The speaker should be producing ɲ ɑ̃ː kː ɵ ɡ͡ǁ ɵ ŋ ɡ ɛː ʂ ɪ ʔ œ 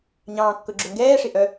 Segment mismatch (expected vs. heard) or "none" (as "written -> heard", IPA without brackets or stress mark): none